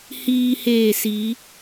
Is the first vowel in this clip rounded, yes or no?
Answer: no